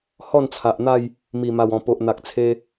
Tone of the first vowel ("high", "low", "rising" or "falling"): falling